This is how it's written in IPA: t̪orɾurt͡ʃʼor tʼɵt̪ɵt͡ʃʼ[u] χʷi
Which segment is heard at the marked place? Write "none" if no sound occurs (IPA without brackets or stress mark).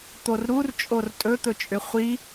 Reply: ʏ